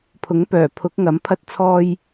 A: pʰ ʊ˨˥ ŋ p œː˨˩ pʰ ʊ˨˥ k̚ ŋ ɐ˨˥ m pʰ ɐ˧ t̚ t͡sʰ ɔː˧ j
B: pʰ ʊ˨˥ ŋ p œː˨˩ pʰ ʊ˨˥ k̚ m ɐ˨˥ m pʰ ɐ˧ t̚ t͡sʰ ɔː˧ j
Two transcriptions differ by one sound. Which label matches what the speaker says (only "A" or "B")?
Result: A